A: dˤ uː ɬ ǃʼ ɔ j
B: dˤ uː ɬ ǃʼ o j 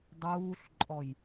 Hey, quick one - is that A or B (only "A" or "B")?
A